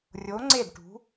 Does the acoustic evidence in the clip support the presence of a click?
yes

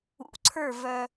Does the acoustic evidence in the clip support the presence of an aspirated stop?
yes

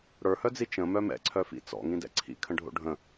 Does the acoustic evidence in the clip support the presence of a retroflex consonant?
yes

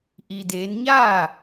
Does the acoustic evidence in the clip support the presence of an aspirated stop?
no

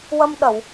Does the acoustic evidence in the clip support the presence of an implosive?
yes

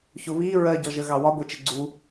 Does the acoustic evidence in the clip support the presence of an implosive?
no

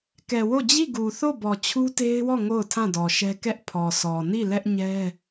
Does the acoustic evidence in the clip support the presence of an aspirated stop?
yes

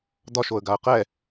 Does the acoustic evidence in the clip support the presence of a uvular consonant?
yes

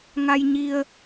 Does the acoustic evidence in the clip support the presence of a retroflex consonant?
no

